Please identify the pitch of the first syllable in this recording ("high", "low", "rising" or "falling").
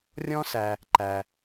high